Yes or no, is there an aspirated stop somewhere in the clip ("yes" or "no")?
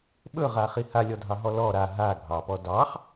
no